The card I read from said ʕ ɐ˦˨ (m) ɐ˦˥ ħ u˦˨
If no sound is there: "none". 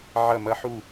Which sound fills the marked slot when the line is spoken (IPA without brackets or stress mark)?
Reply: m